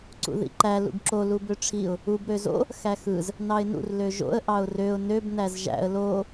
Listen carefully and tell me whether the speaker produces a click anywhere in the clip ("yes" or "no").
yes